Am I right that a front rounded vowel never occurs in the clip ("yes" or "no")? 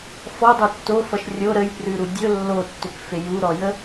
no